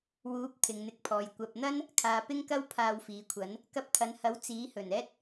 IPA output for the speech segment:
w uː˨˥ p̚ t̪ʰ ɪ˨ ŋ n̪ ɪ˧ k̚ pʰ ɔː˨ j kʷ ɐ˨ p̚ n̪ ɐ˥ n | kʰ aː˨ p ɪ˥ ŋ k ɐ˥ w pʰ aː˧ w f iː˨ kʷʰ ɐ˨˥ n | k ɐ˧ p̚ t̪ʰ ɐ˨ n h ɐ˨˥ w t͡s iː˨˥ h ɵ˨˩ n ɛː˥ t̚

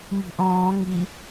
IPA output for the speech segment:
m i̤ ʔ ɔ̃ː ŋ i

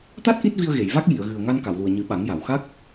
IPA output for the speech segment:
t̪ a˦˥ t̚ ʔ i˦˥ t̚ v i˧ ə̯ ɣ e˨˩˨ j v a˦˥ k̚ j i˨˩˨ ə̯ ɣ ɨ˨˩ ə̯ ŋ a˧ n k a˨˩˨ w l u˨˩ ə̯ ɲ ɨ˨˩˦ ɓ a˨˩˦ ŋ j a˨˩˨ w x a˦˥ k̚

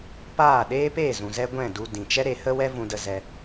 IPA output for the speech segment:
p aː˦˨ ɗ eː˦ p eː˦˨ z ũ˨ z ɛ˦ ɡʷ ɛ̃˦˨ d u˧ d ĩ˨ t͡ʃ ɛ˦ ɾ e˨˦ h ə˦ w ɛ˦ v ũ˧ d ə˧ z ɛ˧

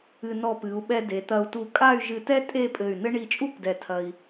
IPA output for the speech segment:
ɨ˧ n ɔ˧ p ɨ˩˧ u̯ ɓ ɛ˧ d e˩˧ t̪ ɐ˧ u̯ t u˧˩ kʼ a˥˧ y̯ ʒ ɨ˧ t ɛ˥ tʼ e˥˧ pʼ ɘ˧˩ y̯ n ɘ˥ ɳ i˧˩ t͡ʃʼ u˥˧ p d ɛ˧˩ tʰ ɐ˧ i̯

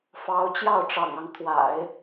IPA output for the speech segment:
f ɑ˧˥ ʊ̯ t͡ɕ j ɑ˥˩ ʊ̯ ʈ͡ʂ ɑ̰˨˩ ŋ ɑ˦ ŋ t̪ʰ w a̰˨˩˦ ɪ̯

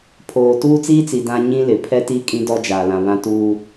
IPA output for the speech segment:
pʰ oː˨ t uː˦ t͡s iː˦ t͡s i˨ d ã˦ ɲ ĩ˦ l ɪ˨ pʰ ɛ˦ t i˦ kʼ ĩ˦ d ɔ˦ d͡ʒ aː˨ l ã˨ β ã˦ t uː˦

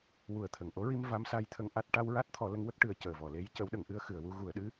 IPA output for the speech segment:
w u˨˩ ə̯ t̪ʰ ə˨˩˨ ŋ ʔ o˧˥ ɹ i˧ m v a˧˥ m s a˧ j t̪ʰ ə˧ ŋ ʔ a˦˥ t̚ ʈ a˧ w ɹ a˦˥ t̚ t̪ʰ ɔ˨˩˦ l ə˧˥ ŋ w ə˦˥ k̚ ʈ ɨ˨˩ ə̯ c əː˨˩ v ɔ˨˩˨ l e˧˥ j c ə˧˥ w ɗ ə˨˩˦ ŋ ʔ ɨ˧˥ ə̯ x ɨ˨˩˨ ə̯ w u˧ ɣ u˨˩˨ ə̯ ɗ ɨ˧˥

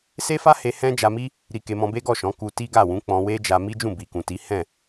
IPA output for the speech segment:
s e˦ f a˦ h e˧ h ɛ̃˦ d͡ʒ a˧ m i˦ | ɾ i˧ k e˧ m ɔ̃˧ b e˦ ɡ ɔ˦˨ ʃ ɔ̃˨˦ k u˧ t i˦ ɡ a˦˨ w ũ˨˦ k͡p ɔ̃˧ w e˦ d͡ʒ a˧ m i˦ d͡ʒ ũ˦˨ b i˨ k ũ˨ t i˨˦ h ɛ̃˦˨

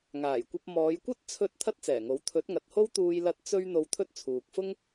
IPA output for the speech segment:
ŋ aː˨˩ j kʷ ɐ˧ p̚ m ɔː˨˧ j kʷ ɐ˥ t̚ t͡sʰ ɵ˧ t̚ t̪ʰ ɐ˥ t̚ t͡s ɛː˨˩ ŋ o˨˥ w t̪ʰ ɵ˨˥ t̚ ŋ ɐ˨ t̚ h o˥ w t̪ uː˧ j l ɐ˧ t̚ t͡s ɵ˥ ɥ n̪ o˧ w t̪ʰ ɵ˥ t̚ t͡sʰ uː˨ k̚ f ʊ˥ ŋ

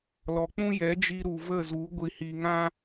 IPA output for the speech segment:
l ɔ˨ k͡p ũ˦ j ɛ˨˦ d͡ʒ i˧ ɾ u˨ v ə˦˨ z u˨˦ ɡʷ i˨ h i˨ ŋ ã˦

